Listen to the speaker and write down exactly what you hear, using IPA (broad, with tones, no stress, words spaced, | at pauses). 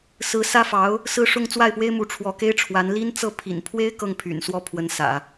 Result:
sɹ̩˧˥sä˥fɑ˧˥ʊ̯ | sɹ̩˥˧ʂʊ˥˧ŋ t͡swa˥˩ɪ̯pwe˥ɪ̯mu˧˥ ʈ͡ʂʰwɔ˧˥ke˥ɪ̯ʈ͡ʂʰwa˧˥n li˥nt͡sɤ˥˩ pʰḭ˨˩npʰwe˥ɪ̯ kɤ˥˩ŋpʰy̰˨˩nswɔ˥˩ pʰwə˧˥nsä̰˨˩˦